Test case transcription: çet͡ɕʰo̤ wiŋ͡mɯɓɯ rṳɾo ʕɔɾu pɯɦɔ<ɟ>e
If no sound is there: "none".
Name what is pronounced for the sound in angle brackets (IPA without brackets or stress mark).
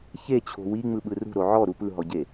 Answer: ɟ